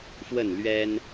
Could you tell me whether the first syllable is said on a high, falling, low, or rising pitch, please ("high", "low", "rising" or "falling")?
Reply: falling